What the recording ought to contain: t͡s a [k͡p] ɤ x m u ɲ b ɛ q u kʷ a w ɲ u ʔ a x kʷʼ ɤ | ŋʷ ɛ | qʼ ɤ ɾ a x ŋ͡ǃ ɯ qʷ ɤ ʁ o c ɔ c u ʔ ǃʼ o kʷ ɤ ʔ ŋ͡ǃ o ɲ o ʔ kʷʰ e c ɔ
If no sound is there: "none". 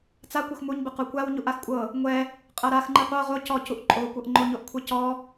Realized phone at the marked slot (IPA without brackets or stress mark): kʷ